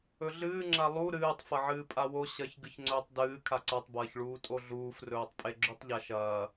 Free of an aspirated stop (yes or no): no